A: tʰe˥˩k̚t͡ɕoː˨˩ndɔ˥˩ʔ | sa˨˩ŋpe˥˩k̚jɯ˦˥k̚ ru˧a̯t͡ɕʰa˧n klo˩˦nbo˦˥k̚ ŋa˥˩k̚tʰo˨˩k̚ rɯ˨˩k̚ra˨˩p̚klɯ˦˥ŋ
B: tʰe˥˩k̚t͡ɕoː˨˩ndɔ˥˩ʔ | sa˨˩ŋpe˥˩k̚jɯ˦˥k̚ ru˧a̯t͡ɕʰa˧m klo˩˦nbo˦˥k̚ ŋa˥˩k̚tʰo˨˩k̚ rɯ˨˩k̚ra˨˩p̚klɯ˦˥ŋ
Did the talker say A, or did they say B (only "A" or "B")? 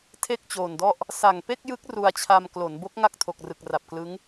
B